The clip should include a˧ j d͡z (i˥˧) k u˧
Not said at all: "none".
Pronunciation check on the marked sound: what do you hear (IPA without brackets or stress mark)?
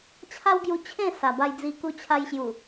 i˧